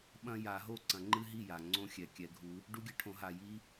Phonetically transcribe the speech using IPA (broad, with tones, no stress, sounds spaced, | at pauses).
ɓ ɐ̃˦ j a˨˩˦ ɦ o˥˩ ǀ ɐ̃˨˩˦ ŋ͡ǃ ɨ˦ ɦ i˥˩ j a˩ ŋ͡ǀ õ˦ xʲ ɛ˩ kʲ ɛ˨˩˦ ɡʱ u˨˦ | ɖ u˦ ɡʲ ɐ˦ ʈʰ õ˨˩˦ ɦ a˩ j i˦